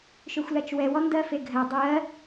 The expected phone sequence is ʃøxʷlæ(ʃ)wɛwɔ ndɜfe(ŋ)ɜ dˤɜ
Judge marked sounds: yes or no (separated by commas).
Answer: no, no